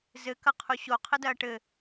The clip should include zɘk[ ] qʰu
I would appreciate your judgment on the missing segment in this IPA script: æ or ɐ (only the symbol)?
ɐ